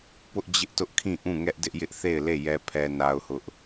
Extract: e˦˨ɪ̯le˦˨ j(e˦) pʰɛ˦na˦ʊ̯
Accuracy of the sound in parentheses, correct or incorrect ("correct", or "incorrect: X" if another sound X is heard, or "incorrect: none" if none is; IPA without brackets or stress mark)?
incorrect: ɛ˦